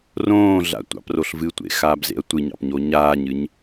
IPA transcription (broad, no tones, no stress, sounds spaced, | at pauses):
r õː ɮ a̰ tʷ ɑ̰ p r o ɬ v ɨ tʷ ḛ x aː b z ḛ ɐ̯ tʷ ɨ ɲ ɑ̰ p ɲ o ɲ aː ɲ ɨ ɲ